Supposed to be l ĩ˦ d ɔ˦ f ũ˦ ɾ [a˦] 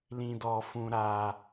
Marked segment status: correct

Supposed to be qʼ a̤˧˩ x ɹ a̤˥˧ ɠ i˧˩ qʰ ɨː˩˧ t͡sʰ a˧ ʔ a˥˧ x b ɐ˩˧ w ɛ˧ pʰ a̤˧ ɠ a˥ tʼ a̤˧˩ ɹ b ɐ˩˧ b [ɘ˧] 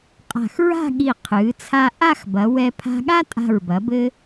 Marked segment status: correct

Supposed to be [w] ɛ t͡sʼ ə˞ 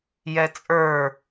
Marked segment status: incorrect: j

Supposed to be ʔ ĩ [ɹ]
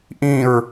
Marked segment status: correct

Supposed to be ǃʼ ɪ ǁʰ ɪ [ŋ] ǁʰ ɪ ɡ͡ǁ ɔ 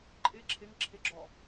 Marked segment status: correct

